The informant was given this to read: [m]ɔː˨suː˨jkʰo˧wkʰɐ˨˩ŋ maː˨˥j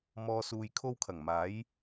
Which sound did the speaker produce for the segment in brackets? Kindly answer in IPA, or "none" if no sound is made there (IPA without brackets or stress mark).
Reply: m